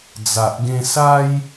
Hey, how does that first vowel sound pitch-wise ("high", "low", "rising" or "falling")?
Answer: low